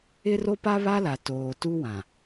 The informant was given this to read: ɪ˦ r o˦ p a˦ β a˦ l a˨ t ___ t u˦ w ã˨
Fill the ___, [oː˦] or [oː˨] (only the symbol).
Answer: oː˨